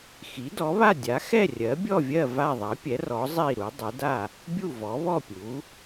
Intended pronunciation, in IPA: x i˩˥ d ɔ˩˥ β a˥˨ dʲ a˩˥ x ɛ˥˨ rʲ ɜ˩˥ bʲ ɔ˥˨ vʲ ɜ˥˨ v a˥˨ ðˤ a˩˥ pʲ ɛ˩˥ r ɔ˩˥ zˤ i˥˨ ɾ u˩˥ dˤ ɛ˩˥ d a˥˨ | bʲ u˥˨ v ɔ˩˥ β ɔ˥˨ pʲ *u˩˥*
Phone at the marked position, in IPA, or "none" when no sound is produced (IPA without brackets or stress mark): u˩˥